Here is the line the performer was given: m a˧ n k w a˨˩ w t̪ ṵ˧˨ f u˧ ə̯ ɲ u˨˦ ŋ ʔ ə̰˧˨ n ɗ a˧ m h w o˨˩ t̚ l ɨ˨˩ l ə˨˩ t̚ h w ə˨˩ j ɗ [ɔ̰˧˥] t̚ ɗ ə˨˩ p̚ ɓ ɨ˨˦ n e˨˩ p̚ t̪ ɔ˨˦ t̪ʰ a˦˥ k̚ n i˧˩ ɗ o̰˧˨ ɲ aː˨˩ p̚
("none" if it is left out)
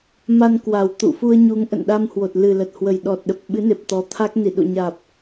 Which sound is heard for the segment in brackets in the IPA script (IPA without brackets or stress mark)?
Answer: ɔ˨˩